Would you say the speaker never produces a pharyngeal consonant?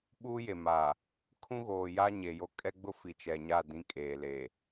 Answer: yes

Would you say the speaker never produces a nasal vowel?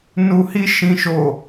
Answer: no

